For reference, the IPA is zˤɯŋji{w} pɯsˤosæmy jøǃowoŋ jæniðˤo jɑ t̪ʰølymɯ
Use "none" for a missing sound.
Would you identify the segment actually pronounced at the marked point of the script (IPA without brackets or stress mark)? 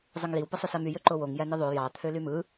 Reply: w